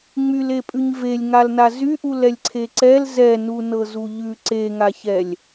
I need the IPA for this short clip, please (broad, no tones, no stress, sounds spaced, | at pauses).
ŋ͡m y l e pʼ ʉ ɲ v e lʲ ŋ a l n a z y ʔ u l ɛ lʲ ǀʰ e ǀ ɛ l z ɛ n u n ɤ z u ʎ ʉ ǀ e ŋ a ç ɛ lʲ